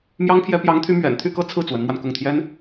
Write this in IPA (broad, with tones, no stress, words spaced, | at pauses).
mjɑ˥ŋpʰjɛ˥ pjɑ˧˥ŋt̪ʰy˧˥mɥɛ̰˨˩nt̪ʰy˥˧ kɤ˥˧t͡sʰɹ̩˥˩ t͡swə˧˥nmwa˧nkʊ˥˩ŋ t̪ʰjɛ˥n